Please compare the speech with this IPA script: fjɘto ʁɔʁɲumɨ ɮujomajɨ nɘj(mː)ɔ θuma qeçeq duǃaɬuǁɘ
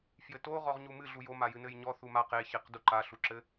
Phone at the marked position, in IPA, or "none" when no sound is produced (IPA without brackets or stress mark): ɲ